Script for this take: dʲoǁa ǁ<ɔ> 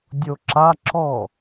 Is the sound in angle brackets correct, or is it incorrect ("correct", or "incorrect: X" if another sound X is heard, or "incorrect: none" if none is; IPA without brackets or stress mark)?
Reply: correct